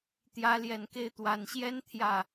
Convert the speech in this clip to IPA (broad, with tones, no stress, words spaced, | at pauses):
t̪jä˧˥ ljɛ˨˩nke˥˩ɪ̯ t̪wa˨˩nɕjɛ˥n t̪ʰjä˥˩